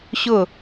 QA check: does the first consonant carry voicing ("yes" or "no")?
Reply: no